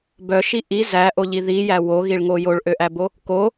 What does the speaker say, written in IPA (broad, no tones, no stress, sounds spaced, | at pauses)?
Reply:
b œ ʃ i ʔ i z æ ʔ o ʎ i ð i j æ w o ɣ i ɭ ŋ o j o ɭ ʔ ø ʔ æ b o | k o